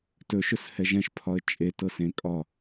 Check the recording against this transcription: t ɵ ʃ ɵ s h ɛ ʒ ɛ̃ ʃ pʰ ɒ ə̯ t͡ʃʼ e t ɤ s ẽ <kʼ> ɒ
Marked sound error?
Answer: no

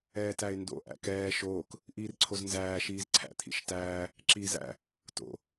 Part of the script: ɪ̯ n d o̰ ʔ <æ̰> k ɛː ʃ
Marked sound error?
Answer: no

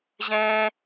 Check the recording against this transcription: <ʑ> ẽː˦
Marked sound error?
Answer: no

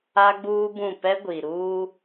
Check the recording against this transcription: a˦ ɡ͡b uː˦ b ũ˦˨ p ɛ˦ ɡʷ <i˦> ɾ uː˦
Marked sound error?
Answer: yes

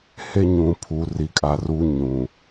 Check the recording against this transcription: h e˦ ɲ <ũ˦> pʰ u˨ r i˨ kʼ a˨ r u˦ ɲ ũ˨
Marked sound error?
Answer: yes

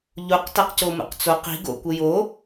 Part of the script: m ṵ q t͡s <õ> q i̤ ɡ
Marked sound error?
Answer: yes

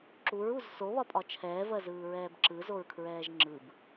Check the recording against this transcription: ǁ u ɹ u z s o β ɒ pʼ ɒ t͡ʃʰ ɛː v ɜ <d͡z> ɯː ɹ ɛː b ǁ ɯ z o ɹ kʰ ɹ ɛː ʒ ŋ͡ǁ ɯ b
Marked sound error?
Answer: yes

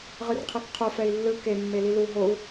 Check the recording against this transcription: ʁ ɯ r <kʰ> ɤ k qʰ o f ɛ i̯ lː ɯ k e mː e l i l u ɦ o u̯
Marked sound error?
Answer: yes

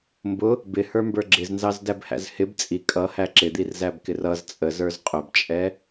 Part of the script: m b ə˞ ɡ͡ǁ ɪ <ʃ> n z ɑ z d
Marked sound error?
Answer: yes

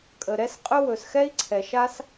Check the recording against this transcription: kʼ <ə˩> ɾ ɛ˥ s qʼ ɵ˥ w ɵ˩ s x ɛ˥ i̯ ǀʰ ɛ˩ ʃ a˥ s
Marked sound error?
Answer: no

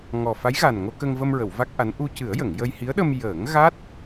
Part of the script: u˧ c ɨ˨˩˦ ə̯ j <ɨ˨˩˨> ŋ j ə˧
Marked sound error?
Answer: yes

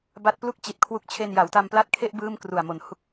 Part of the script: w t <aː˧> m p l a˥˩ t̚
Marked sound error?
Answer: yes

